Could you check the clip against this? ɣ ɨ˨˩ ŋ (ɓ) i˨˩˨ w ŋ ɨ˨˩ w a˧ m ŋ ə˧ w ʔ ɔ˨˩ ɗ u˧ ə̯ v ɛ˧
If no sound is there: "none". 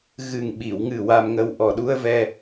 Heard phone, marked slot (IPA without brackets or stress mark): ɓ